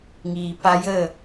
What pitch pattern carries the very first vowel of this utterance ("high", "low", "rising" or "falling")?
low